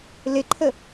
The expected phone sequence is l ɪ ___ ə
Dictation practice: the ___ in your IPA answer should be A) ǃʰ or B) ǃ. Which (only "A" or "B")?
A